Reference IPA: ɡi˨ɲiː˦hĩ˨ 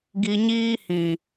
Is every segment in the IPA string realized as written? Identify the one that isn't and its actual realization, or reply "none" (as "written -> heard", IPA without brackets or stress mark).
none